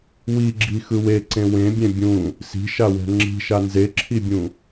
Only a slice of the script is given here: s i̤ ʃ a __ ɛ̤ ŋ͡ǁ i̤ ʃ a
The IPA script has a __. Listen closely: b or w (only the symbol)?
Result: w